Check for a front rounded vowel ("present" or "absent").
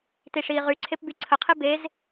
present